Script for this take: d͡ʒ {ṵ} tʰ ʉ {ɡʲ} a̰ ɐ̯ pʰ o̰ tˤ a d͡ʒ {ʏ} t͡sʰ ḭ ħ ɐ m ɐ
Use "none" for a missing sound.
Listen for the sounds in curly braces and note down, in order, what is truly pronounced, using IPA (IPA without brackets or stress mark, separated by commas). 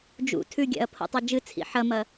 ṵ, ɡʲ, ɨ